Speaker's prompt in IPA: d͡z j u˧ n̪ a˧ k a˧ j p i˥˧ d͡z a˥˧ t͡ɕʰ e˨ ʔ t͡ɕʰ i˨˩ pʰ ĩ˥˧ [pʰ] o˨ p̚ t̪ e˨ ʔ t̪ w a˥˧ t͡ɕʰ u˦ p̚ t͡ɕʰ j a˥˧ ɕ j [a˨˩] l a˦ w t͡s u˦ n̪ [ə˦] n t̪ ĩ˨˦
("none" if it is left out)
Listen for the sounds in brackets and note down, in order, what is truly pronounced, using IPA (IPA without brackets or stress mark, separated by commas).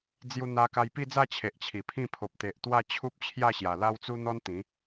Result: pʰ, a˨˩, ɔ˦